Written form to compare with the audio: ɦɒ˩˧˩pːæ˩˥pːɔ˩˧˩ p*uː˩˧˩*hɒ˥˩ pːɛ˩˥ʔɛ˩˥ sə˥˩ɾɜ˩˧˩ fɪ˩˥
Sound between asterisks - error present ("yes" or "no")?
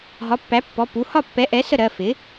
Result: yes